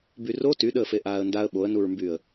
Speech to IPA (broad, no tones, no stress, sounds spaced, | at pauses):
b y r o t y ɗ əː f e ʔ aː ə̯ n d a ə̯ ɓ o ə̯ n u ɹ m b yː ə̯